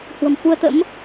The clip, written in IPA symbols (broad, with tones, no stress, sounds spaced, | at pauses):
h w ə̤˨˩ m f u˧ ə̯ t̪ ə̰˧˥ m